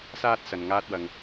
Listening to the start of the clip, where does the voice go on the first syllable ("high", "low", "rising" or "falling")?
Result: high